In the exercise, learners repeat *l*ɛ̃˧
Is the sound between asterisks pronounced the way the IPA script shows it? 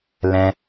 yes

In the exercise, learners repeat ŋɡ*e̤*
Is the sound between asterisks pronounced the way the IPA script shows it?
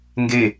no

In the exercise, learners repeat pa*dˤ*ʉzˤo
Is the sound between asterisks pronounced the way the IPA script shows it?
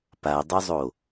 yes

